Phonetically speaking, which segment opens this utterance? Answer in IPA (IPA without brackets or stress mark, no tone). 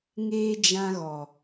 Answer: ŋ